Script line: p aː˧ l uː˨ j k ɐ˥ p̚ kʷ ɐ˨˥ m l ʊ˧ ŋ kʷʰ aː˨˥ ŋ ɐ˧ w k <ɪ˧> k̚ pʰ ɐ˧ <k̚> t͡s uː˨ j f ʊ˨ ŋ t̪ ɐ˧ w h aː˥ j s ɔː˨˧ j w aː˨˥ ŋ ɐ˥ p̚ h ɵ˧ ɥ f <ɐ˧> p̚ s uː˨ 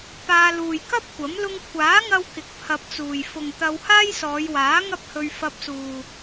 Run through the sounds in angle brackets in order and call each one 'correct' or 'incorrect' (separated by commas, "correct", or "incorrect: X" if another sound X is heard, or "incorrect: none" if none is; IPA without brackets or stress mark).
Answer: incorrect: ɪ˨, incorrect: p̚, correct